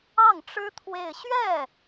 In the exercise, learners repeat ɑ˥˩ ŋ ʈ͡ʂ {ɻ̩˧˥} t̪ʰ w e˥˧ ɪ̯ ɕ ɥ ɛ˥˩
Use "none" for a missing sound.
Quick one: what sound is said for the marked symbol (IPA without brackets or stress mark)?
ɻ̩˥